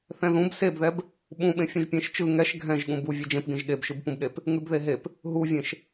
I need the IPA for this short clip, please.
θ ɛ̃ ð ũ b s e b ð ɛ b | ɓ ũ ɓ ẽ fʲ ũ ʒ pʲ ẽ ʃ t͡ʃ ɯ ŋ ɛ ʃ ɡʱ ɛ̃ ʒ ɠ ũ b u vʲ ɛ d͡ʒ ẽ p ɡ ẽ ʒ ɠ e b ʃ ɯ b p ũ b ɗ e p | ŋ ʉ b ð e ɦ e p | ɦ u vʲ ẽ ʃ

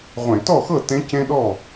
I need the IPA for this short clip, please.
ʁʷ ẽ˧˩˧ t ɔ˥˩ x ɤ˥˩ t ẽ˨˥ c ẽ˦˥ ɗ ɔ˥˩

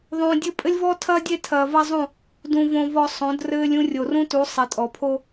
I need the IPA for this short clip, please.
ðˤ ũ˨ dʲ ɨ˦ pʼ ɘ˦ lʲ v ɔ˦ tʰ ɐː˦ dʲ e˦ tʰ ɐː˨ v ɐ˦ zˤ ũ˦˨ | d ũ˨ v õ˨ v ɔ˨ sˤ õ˨˦ d r ɘː˦ lʲ ũ˦ rʲ o˨ r ũ˦ t u˨˦ sˤ e˨ tʼ ɔ˨ pʰ o˦

